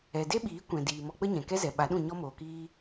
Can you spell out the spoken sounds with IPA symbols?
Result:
ɛ˨ d e˦ ɓ iː˨˦ kʷ ɛ̃˨ d iː˨ m ɔ˧ k͡p ə˦ ɲ ɛ̃˨ k ɛ˦ z ɛ˨ ɓ a˨˦ ɗ ũ˦˨ ɲ ɔ˦ m oː˨ k iː˦

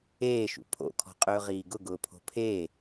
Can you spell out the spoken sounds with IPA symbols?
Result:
eː ʃ ṵ pʰ o̰ kʰ ɔ̤ qʼ ɵː ʁ iː ɡ ʊ ɡ ʊː pʰ o̤ pʰ eː

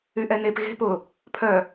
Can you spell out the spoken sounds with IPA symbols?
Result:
y ʔ ɛ n e p ɣ e̤ p ʊ | pʰ œ

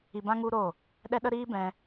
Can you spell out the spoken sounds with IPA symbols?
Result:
i˧ b ã˦ ŋ u˦ ɾ o˦˨ | ɗ ɛ˦ ɗ ə˦ ɾ iː˦ b ɛ̃˧

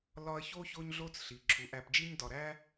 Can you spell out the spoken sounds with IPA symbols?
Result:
l ɒ˦ ɐ̯ ç o˥ ç o˦ ɲ ɮ o˦ t͡s ɬ i˩ ǁʰ u˩ ʔ æ˨ p d͡ʒ i˦ ɲ d ɒ˨ ɾ æ˥

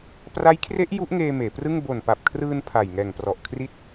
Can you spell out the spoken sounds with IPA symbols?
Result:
p r a˦˥ j kʰ r e˦˥ ʔ j u˦˥ ʔ ŋ eː˧ m eː˩˦ p r ɯ˥˩ ŋ b o˨˩ n p a˨˩ p̚ kʰ r ɯː˧ n pʰ a˨˩ j ŋ ɛː˨˩ ŋ p r ɔ˨˩ ʔ kʰ r i˦˥ t̚

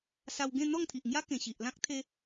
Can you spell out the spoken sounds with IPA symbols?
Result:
s a˧ w ɡ ẽ˥˧ n̪ ɔ˥˧ ŋ t̪ʰ i˨ ʔ ŋ j a˦ k ẽ˨˩ ɕ i˨ ʔ l ã˦ k̚ t̪ʰ e˧

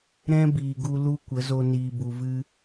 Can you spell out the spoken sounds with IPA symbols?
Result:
ɾ ɛ̃˦ b iː˨ ɡ u˧ l u˦ kʷ ə˨˦ z o˧ n iː˨ b u˨ v ɨ˧

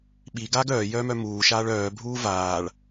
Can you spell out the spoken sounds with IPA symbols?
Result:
ɓ i ɡ aː ɡ œː j œː m œ m uː ʃ aː ɭ œː bʱ uː v aː ɭ

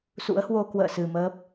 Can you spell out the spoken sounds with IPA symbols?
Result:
s ṵ˧˥ ə̯ h w o˧ k w ə̰ː˧˨ s ɨ˨˩ m əː˦˥ p̚

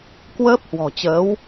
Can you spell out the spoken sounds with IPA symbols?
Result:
k w əː˦˥ p̚ h w ɔ̤˨˩ t͡ɕ əː˨˦ w

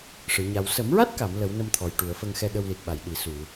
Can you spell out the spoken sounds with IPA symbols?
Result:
ʂ ɨ˨˩˦ ɲ a˧ w s ə˨˩˦ m ɹ a˦˥ t̚ k a˨˩˨ m l ə˨˩˦ w n ə˧ m t̪ʰ ɔ˨˩ j ʈ u˨˩˨ ə̯ f ə˧ ŋ x ɛ˧ ɗ ə˧ w l i˨˩ t̚ ɓ a˨˩˨ j ɗ i˨˩˨ s u˨˩˨

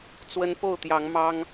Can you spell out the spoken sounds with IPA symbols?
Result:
t͡s w ə˦ n p o˥˨ ʊ̯ t̪ j ɑ˨˦ ŋ m ɑ˦ ŋ

